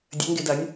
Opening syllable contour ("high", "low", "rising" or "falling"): rising